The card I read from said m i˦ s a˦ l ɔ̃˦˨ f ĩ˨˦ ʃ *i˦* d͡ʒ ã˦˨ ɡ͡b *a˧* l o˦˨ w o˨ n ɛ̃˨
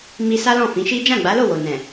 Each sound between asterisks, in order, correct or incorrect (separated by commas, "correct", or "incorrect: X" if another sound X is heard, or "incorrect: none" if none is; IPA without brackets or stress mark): correct, incorrect: a˨˦